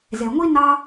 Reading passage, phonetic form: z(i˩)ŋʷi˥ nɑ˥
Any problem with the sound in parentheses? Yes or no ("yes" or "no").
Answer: yes